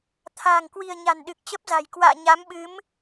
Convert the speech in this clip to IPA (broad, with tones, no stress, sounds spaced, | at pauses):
t̪ʰ a̤ː˨˩ ŋ k w i̤˨˩ ə̯ ɲ a̤˨˩ n ɗ ɨ˨˩ k̚ t͡ɕ ə˦˥ p̚ z a̤˨˩ j k w a̰ː˧˨ ɲ a˨˦ m ɓ ɨ˨˦ m